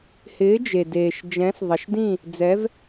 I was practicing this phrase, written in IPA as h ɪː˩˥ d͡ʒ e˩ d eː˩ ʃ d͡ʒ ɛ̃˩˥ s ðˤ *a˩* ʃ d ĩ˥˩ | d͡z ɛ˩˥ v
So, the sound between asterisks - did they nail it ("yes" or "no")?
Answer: no